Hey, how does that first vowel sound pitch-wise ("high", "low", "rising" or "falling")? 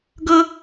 high